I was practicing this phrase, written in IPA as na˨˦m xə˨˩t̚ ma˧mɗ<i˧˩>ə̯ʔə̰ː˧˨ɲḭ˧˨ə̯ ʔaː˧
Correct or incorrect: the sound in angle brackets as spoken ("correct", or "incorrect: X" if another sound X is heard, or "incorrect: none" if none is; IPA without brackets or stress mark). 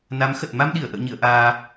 correct